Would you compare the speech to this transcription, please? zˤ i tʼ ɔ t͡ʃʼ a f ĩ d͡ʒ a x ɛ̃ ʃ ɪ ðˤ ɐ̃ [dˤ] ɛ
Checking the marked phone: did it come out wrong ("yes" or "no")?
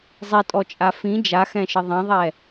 yes